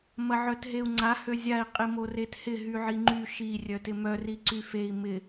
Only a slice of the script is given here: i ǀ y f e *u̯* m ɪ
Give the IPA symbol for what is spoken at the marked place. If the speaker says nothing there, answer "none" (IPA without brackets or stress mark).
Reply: i̯